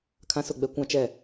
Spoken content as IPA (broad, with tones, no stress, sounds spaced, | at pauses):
kʰ ã˦ s ʊ˦˨ ɡ͡b ɛ˦ kʷ ã˦ t͡ʃ ɛ˦˨